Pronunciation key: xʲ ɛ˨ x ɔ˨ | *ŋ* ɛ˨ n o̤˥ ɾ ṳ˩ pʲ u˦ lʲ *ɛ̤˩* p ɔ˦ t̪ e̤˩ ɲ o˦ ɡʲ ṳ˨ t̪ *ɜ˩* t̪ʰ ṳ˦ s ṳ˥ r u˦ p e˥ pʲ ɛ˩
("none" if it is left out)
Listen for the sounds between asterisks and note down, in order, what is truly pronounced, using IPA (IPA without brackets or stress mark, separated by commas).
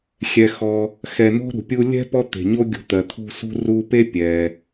x, ɛ̤˥, ɜ˩